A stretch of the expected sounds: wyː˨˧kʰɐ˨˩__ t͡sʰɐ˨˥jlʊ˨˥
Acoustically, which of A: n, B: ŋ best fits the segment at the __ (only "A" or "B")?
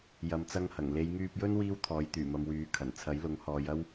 A